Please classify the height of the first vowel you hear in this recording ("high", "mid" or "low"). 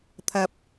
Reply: low